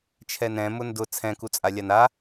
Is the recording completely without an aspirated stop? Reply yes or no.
no